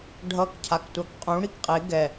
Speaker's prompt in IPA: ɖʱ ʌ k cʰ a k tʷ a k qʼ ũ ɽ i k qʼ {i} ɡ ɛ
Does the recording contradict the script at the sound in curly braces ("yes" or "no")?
yes